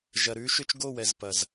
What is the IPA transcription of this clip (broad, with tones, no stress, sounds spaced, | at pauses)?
ʒ ɐ˨ ɾ ʉ˨˦ ʃ ʏ˦ t͡ʃ ɡ o˦˨ w ɛ˨ z p ɐ˨ z